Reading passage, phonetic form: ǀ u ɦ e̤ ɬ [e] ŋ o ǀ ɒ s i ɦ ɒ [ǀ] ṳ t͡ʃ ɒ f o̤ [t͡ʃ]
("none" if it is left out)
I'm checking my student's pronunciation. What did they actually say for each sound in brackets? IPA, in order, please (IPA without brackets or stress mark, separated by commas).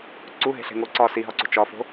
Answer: e̤, ǀ, none